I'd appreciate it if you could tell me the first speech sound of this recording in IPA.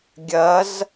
ɡʲ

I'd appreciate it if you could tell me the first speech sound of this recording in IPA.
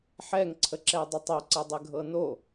ħ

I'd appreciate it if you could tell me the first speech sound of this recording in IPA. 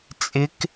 t͡sʼ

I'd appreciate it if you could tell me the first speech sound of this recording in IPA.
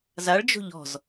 z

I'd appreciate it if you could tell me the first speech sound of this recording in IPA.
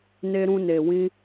n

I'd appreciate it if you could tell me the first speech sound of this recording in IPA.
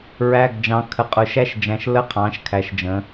ɹ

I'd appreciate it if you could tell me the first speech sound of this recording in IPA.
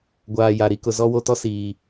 ɡʷ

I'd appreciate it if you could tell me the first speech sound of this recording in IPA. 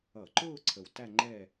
ʌ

